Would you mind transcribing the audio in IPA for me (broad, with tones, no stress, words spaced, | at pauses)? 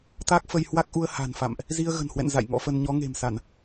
t̪a˦˥k̚fə˧jhwa˦˥k̚ʔu˧ə̯ ha̤˨˩nfa̰˧˨mʔ | zi˧ə̯ɣə̤˨˩nhwɛ̰˧˨n za̰˧˨jŋɔ̰˧˥fə˧n ɲɔ˨˦ŋe̤˨˩msa˧˩˨n